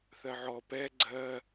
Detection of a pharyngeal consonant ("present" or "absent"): present